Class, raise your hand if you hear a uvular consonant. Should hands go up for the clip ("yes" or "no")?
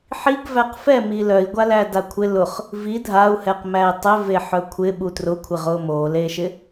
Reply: yes